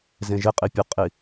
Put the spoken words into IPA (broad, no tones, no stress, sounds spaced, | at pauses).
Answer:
z ẽ ʒ ɪ qʼ i pʲ ʊ qʼ i